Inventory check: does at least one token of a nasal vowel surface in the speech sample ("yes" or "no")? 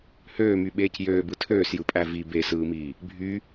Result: no